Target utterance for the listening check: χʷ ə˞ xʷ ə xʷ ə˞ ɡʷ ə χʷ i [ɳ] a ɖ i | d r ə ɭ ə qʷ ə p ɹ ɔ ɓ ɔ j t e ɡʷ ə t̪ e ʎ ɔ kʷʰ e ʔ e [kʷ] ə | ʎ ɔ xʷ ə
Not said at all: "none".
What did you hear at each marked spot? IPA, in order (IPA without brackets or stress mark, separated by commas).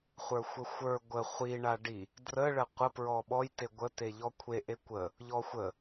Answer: ɳ, kʷ